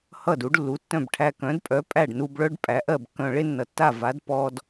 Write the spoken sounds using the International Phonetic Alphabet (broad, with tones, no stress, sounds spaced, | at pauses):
h ʌ˥˩ d u˩˥ ɖ lː u˩˥ tː œ̃˥˩ b ʈʰ æ˧ k œ̃˩˥ d pʼ œ˩˥ pʼ æ˥˩ ɖ n u˧ b ɭ œ˥ ɖ pʼ æ˩˥ ʔ ɜ˥˩ b kː œ̃˧ ɭ e˥ nː ʌ˩ tː a˥˩ v a˩˥ d p ɔ˧ d